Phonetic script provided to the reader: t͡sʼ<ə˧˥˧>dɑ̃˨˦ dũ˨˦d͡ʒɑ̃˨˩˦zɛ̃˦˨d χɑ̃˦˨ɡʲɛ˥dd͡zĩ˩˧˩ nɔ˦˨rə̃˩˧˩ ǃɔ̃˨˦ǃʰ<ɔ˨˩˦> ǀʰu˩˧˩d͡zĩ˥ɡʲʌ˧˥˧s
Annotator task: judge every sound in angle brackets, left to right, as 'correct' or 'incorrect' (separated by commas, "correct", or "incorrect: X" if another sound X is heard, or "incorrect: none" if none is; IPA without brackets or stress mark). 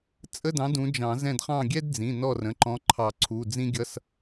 correct, incorrect: ɑ˨˩˦